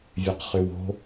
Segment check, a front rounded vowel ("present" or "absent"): present